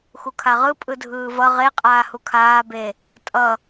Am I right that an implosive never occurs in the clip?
yes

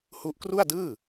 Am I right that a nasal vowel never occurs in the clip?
yes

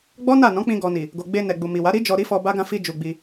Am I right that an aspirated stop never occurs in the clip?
yes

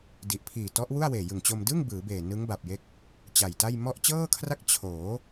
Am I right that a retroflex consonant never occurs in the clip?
yes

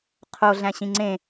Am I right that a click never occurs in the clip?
no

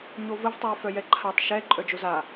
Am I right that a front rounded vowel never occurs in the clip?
no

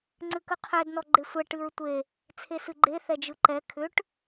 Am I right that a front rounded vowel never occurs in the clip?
no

